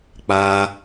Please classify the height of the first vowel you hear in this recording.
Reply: low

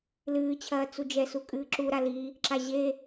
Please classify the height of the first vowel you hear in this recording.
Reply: high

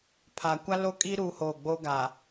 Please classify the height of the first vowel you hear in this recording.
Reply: low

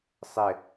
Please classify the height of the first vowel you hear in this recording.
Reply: high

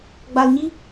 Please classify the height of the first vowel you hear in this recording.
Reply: low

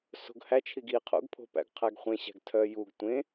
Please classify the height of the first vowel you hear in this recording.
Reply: mid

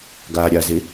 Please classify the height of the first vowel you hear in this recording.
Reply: low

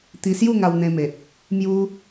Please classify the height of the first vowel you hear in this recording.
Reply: high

